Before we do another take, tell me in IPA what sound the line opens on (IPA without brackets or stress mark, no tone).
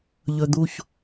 ʎ